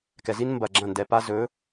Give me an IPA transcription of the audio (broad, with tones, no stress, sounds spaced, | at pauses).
k ɛ˨ z i˦ n m b ɐ˨ ɡ͡ǁ ɐ̃˦˨ n d ɛ˨ p a˦ z ɵ˨˦